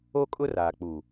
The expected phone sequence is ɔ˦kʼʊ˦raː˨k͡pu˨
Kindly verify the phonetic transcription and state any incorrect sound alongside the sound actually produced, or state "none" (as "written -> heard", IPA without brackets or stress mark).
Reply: ɔ˦ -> o˦